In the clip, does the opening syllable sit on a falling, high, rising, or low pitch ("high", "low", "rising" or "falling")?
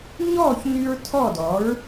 falling